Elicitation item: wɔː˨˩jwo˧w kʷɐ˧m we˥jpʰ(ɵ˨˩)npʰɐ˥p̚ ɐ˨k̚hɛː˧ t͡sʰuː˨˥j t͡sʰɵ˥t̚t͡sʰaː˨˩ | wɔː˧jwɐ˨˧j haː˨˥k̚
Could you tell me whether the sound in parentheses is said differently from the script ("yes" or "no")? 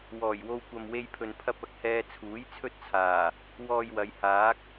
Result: yes